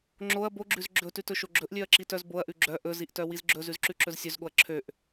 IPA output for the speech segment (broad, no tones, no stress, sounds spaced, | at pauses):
ŋ͡ǁ o ɐ̯ b o ɡ͡ǁ ʉ z ɡ͡ǁ ɵ t ʉ t ɵ ʃ o ɡ͡ǁ ɵ ʔ lʲ ø ɐ̯ ǁ i t œ z b o ɐ̯ ʔ ʉ ɡ͡ǁ œ ʔ ɵ z i ʔ t œ w i z ɡ͡ǁ ɵ z ʉ z ǁ ʉ ǁ ɵ z sʲ ø z ɠ o ɐ̯ ǁʰ ø ʔ